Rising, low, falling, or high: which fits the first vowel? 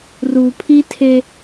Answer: low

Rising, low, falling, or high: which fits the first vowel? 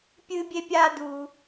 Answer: high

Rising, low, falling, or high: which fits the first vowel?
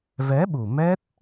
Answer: rising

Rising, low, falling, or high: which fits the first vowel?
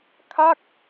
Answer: falling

